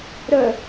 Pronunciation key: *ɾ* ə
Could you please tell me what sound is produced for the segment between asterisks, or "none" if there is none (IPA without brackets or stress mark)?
ɾ